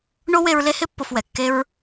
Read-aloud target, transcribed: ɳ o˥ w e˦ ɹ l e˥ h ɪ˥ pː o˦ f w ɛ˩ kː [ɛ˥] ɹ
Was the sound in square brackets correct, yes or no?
no